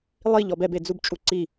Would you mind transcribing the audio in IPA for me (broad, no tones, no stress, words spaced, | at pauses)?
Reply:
lˠiʎɔb ɛbed͡zubt͡ʃʼu ǀi